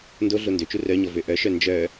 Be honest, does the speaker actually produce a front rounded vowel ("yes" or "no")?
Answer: yes